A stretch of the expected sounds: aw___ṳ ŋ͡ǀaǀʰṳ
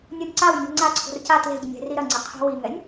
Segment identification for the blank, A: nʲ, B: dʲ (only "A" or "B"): A